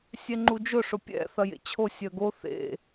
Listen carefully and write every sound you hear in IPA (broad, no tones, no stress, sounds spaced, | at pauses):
sʲ ɛ ŋ͡ǃ u d͡ʒ ʊ ʂ ʊ pʲ ɛ̰ θ ɐ j ḛ t͡ɕʰ o sʲ œ ɡ o θ ḛ